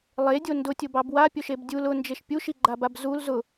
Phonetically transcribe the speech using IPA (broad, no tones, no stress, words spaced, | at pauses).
lˠedʲo ndʊtʲʊbɑb wapʲoʃeb dʲul ʊnd͡ʒeʃ pʲuʃiɡ͡ǃabab zul zʊ